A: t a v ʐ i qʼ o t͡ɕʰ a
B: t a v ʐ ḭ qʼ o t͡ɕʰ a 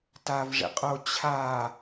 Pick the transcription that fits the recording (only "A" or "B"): B